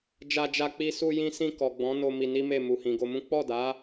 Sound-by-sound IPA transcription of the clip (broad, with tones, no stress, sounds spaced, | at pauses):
d͡ʒ a˧ d͡ʒ a˧ k͡p i˧ s u˧ j ĩ˧ s ĩ˧ k ɔ˨ ɡ͡b ɔ̃˨˦ n o˧ m i˧ n i˦ m e˦˨ m u˨ h ĩ˨ ɡ o˧ m ũ˦ k͡p ɔ˦˨ d a˨˦